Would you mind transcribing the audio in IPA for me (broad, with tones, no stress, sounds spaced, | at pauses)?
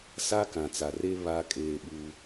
s a˦ k ã˨ t͡s a˨ r e˦ β a˦ kʼ eː˦ ɓ uː˦